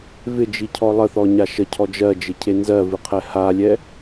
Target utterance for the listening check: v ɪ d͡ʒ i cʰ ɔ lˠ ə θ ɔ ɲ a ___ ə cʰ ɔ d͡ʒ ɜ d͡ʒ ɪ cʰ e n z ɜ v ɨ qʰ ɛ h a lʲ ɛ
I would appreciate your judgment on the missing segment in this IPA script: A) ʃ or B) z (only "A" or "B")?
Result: A